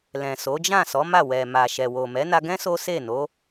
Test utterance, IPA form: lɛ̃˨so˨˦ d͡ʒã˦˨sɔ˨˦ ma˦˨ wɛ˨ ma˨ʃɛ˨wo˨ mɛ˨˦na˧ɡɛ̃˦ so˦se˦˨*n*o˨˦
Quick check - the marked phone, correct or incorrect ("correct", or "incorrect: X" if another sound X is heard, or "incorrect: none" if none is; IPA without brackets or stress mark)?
correct